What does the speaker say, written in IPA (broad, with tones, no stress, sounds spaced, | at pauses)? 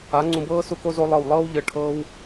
a˨˦ ŋ͡ǀ ũ˧ b ɤː˦ s u˦ k o˦ z o˦ lˠ ɤ˦˨ w lˠ ɤː˦ w ʎ ɤ˧ ʈʰ ɤː˦ w